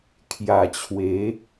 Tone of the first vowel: low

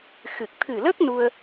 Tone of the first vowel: low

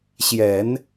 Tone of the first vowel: low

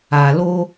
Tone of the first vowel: low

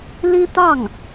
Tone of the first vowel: high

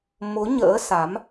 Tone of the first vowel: rising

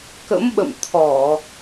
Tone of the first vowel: rising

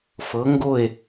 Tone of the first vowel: rising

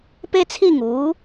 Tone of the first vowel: high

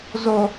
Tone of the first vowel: low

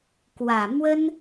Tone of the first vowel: low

